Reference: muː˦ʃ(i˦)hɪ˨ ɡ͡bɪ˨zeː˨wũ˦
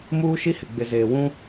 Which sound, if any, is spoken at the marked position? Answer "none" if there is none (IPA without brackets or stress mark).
i˦